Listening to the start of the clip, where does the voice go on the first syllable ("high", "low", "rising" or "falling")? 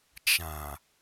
low